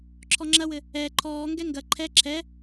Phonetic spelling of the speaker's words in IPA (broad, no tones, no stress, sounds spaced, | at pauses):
ǁʰ ɔ ŋ͡ǁ ɐ w ɘ | ɛ ǃʰ ɔː ŋ ɡ ɛ ŋ ɡ ɐ ǃʰ ɛ ǁʰ ɛ